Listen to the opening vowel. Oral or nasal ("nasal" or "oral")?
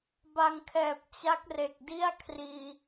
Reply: oral